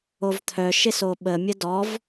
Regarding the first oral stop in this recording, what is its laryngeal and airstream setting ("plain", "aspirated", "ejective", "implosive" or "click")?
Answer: aspirated